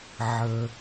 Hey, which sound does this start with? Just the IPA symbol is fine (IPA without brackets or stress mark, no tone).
ʕ